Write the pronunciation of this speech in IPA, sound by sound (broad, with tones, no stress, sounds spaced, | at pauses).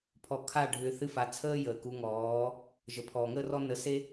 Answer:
pʰ ɔ˨ kʰ a˦˨ ɖʱ ʏː˧ θ ɨ˦ f a˧ t͡sʰ əː˦ j əː˨ k u˧ ŋ ɔː˨˦ | ʒ ə˨ pʰ ɔː˨ ŋ əː˦ r ɔ˦ n ə˧ s e˦